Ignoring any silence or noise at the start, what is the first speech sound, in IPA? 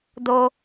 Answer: d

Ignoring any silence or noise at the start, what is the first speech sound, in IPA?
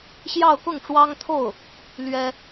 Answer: ɕ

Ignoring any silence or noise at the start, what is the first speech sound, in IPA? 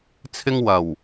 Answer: t͡sʰ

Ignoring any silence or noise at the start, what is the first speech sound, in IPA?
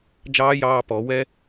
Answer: d͡ʒ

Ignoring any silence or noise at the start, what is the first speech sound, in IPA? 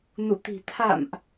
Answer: n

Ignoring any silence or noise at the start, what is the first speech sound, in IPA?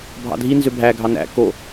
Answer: bʱ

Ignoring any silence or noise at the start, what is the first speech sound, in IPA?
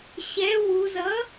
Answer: ɕ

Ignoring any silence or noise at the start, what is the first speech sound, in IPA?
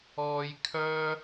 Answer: ɔː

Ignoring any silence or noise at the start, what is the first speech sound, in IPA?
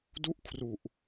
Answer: d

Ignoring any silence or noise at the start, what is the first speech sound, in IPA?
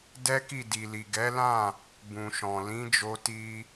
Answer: d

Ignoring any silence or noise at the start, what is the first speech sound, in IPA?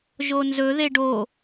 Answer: ʒ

